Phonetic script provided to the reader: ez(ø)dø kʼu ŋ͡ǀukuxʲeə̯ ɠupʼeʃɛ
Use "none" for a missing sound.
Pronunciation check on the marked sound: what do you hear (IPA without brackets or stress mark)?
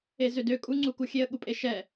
ø